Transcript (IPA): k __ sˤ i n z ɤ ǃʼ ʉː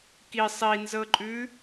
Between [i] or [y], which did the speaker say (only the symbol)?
i